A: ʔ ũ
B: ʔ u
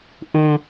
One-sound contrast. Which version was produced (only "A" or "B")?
A